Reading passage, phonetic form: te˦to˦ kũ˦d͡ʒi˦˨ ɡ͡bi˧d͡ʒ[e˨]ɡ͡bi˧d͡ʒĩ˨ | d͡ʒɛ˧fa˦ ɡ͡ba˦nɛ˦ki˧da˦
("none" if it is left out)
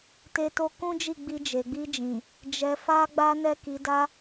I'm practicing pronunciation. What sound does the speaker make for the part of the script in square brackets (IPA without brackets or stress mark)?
e˨